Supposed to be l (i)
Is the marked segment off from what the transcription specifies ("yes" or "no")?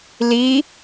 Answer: no